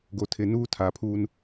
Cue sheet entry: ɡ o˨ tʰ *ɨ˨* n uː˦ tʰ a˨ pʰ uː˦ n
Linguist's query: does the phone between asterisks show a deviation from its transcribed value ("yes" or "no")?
yes